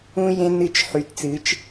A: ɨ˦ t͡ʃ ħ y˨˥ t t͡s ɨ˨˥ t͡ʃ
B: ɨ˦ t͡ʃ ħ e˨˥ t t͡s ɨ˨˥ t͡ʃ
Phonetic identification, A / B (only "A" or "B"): A